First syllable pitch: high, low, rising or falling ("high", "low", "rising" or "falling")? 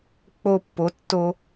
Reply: high